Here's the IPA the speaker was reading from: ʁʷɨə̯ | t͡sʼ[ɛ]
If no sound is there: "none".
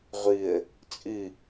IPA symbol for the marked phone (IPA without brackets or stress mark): ɨ